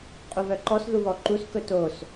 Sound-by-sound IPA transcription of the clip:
qʼ u β œ ǃ ɔ s ð u β ɔ ǃ u s k ɵ t o s

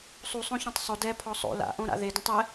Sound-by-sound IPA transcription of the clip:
sˤ u sˤ õ ç õ tˤ sˤ o d ɛ pʰ ɔ sˤ o̰ l a̰ ʔ õ ɾ a̰ ð e d õ tˤ ɛ

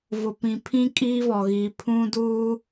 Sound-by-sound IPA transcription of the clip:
v ʊ˨ p ĩ˨ pʰ ĩ˦ kʼ iː˦ v ɔ˨ ɣ iː˨ pʰ ũ˦ d uː˦

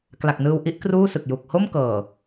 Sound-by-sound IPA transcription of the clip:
k l a˨˩ k̚ n ɯː˧ w ʔ i˦˥ ʔ k r uː˥˩ s ɯ˨˩ k̚ j u˨˩ k̚ h o˥˩ m k ɤː˨˩

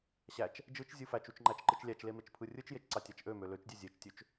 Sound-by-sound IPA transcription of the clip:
ɕ æ t͡ʃ | d͡ʒ ɯ t͡ʃ zʲ ɯ f æ t͡ʃ u t͡ʃ ŋ͡ǃ æ t͡ʃ ǃ ɯ t͡ʃ lʲ æ t͡ʃ l e m e t͡ʃ pʰ ɯ rʲ ɯ t͡ʃ j e t͡ʃ ǀ ɑ tʲ æ t͡ʃ ʔ ø m ø l ø t͡ʃ dʲ e zʲ e t͡ʃ tʲ ø t͡ʃ

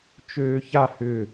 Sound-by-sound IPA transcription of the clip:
t͡ʃ øː ç a h ʏ

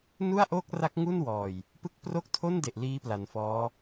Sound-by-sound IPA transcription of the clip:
n u˥˩ a̯ ʔ oː˥˩ k̚ r a˦˥ k̚ ŋ u˥˩ n w ɔː˨˩ j | p ɯ˦˥ k̚ p r o˥˩ k̚ tʰ o˥˩ n d e˨˩ ʔ l iː˦˥ p l a˩˦ n f ɔː˦˥

